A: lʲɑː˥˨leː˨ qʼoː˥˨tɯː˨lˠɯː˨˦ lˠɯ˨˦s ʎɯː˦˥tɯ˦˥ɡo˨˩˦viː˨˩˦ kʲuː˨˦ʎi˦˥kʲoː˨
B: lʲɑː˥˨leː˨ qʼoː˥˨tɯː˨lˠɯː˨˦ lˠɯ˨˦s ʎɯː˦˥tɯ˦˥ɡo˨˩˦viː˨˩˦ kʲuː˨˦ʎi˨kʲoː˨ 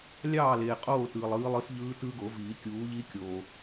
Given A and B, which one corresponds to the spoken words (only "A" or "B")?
A